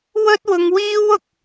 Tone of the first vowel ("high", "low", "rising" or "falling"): high